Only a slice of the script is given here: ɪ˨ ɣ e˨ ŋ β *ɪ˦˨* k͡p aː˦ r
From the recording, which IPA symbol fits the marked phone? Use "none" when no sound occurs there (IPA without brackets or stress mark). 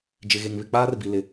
ɪ˦˨